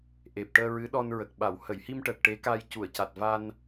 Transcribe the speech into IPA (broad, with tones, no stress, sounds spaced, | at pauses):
ʔ e˨˩ p̚ ʈ əː˧ ɹ ɨ˧˥ ɗ ɔ˧ n ɹ ə˨˩ k̚ ɓ a˨˩˨ w h ə˨˩˨ j h i˧ m ʈ əː˨˩ k̚ ʈ e˧˥ k a˧ j c u˨˩˨ ə̯ c a˨˩ t̚ v a˧ n